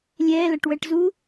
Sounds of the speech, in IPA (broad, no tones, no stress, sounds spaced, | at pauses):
lʲ ɛ l ɐ ʈ w ɛ ʈ z u